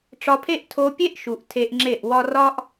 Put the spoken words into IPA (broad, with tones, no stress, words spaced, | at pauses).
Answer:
ʈ͡ʂɒ˧pʰe˦ʔ tʰo˧pʲe˦ʔʃu˨ʔ tʰe˧ʔŋ͡ǁe˦˨ʔ wɒ˧rɒ˦ʔ